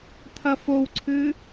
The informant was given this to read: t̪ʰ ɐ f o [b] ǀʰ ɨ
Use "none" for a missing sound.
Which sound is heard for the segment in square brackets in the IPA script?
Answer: w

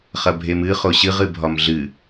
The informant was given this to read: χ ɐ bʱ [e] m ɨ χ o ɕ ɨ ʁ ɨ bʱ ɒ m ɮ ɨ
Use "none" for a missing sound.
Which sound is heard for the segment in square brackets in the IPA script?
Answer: e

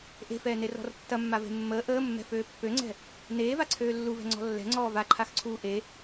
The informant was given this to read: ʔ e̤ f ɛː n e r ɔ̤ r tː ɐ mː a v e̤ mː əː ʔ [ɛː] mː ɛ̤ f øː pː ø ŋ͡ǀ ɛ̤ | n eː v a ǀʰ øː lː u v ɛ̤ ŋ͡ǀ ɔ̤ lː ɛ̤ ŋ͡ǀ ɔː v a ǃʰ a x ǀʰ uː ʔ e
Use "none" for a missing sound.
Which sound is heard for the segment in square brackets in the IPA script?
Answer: əː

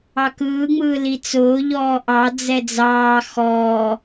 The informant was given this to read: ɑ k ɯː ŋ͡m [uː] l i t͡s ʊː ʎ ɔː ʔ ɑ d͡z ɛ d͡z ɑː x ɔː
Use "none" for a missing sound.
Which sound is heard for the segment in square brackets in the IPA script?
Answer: ɯː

